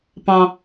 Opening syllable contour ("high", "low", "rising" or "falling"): high